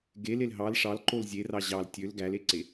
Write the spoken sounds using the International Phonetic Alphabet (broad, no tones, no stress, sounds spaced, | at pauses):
ɡ e l e l ɦ ɑ l ʂ ɑ l ǃ o l zʲ e r ɑ ʑ ɑ l tʲ ø l ɡ æ l e ǀ e